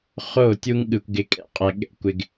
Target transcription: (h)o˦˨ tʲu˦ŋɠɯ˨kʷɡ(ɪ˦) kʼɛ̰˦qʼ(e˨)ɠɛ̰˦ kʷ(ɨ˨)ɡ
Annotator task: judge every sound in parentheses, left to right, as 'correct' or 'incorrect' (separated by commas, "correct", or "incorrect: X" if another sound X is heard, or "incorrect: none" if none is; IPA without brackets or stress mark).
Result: incorrect: χ, incorrect: ɪ˨˦, incorrect: ɛ˨, incorrect: ɪ˨